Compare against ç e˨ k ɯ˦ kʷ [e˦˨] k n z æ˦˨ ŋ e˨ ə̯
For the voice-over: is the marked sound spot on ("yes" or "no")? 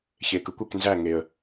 no